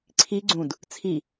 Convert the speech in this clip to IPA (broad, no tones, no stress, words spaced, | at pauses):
ǀʰi ɡ͡ǀũd | t͡sʰi